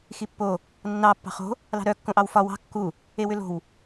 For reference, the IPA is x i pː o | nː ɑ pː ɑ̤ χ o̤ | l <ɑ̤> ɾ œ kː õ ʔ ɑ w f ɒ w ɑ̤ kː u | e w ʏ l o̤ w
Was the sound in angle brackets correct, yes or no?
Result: yes